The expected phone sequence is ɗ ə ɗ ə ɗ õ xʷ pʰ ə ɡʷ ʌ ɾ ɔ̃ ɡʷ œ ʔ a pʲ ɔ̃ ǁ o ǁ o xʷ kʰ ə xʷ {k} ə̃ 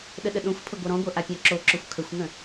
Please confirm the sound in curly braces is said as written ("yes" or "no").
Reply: no